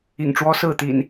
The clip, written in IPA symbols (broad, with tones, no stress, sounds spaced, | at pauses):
ḭ˨˩ ŋ ʈ͡ʂ w ɔ˦ s ɹ̩˥˨ t̪ ḭ˨˩ n